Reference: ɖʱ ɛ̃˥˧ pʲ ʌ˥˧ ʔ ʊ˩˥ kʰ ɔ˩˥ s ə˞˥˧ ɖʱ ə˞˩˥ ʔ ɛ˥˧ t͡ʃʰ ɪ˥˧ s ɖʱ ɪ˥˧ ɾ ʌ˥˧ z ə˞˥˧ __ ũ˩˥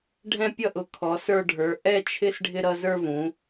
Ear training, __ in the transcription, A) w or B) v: B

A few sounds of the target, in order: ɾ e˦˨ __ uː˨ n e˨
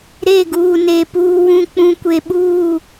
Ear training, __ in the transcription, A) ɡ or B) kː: A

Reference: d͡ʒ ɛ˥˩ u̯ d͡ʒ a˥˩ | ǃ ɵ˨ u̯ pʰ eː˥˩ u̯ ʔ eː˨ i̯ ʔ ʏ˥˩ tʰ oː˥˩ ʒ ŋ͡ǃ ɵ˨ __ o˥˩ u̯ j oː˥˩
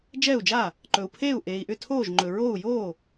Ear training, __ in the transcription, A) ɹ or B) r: A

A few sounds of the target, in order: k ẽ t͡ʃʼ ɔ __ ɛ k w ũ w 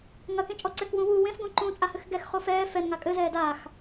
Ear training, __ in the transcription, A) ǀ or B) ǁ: A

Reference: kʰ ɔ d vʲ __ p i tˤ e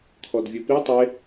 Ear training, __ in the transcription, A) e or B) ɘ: B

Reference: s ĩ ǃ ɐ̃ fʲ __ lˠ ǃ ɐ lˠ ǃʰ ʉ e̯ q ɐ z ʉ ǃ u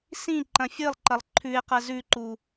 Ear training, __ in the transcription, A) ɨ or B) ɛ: A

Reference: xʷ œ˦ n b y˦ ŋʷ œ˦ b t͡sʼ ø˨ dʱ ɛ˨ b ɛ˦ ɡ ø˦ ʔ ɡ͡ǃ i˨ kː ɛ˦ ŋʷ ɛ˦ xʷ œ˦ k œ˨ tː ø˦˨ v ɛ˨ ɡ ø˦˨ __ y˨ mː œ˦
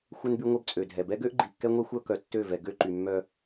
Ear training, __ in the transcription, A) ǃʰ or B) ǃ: B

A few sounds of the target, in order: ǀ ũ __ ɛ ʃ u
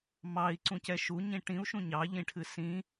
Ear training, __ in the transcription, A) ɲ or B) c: B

